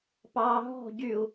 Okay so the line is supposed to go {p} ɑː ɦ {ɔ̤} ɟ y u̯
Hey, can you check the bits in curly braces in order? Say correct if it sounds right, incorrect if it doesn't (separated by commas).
correct, correct